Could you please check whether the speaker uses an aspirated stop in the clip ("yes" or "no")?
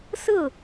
no